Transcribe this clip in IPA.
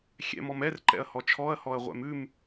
xʲ ɛ̰ m ɔ m ɛ r ǃ ɛ̰ ɐ̯ h ɔ t͡ʃʰ ɔ ɐ̯ h ɔ ɐ̯ ʁʷ ɛ̰ m ʉ m

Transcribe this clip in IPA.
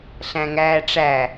ɬ æ̃ ŋ æː ʈ͡ʂ æ

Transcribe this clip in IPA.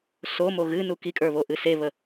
s o m o ɣ ɨ n u k i kʼ ə˞ β o ʔ ɨ s e β ə

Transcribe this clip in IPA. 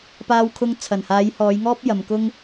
p aː˧ w kʰ ʊ˧ ŋ t͡sʰ ɐ˨˩ n h aː˨˧ j h ɔː˨˧ j ŋ ɔː˥ p̚ j ɐ˨ m k ʊ˥ ŋ

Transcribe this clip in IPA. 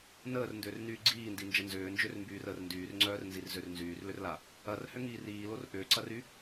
n əː r n d ʏː r n yː ɡ͡ǀ iː n d i n d͡ʒ ə n z ʏː n d͡ʒ ø r m b yː r ə r n d yː r ŋ͡ǀ œː r n z i r z ø r n z yː r l ʏ r l a | ɐ r h ʏ ŋ iː r iː l o r ʔ ʏː ǀ ɐ r y

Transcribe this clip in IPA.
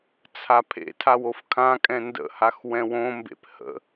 t͡sʰ a pʰ ḛ tʰ a w o f kʰ ã kʼ ɛ̃ n d ə̰ h a x w ɛ̃ w õ m b ḛ p h ə̰

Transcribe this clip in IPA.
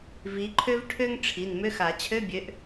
v i˨˦ ǃʰ ø˥ v ʈʰ ø˥ ŋ ʈ͡ʂʰ i˩˧˩ n m ø˧˥˧ x a˨˩˦ t͡ɕʰ ø˧˥˧ bʲ ø˨˦ ʔ

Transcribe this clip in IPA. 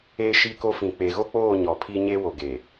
eː˦ ʃ iː˦ k o˦ f ĩ˨ k͡p e˨ ɣ o˦ k͡p oː˦˨ ɲ ɔ˨ pʰ iː˦ ɲ e˦ w o˨ ɡ e˨

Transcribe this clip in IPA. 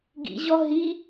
ɡ ḭ ʑ ɔ ɦ i

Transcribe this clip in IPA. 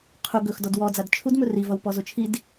qʰ u ɡ ɵ x d ɔ d w ɔ d͡z a d t͡ʃʰ u d m ɵ r i v ʌ w p ɔ z o t͡ʃʰ i d

